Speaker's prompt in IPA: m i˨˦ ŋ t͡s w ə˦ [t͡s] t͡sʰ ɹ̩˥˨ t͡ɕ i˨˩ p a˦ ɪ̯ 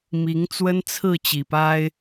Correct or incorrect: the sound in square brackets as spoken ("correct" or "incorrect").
incorrect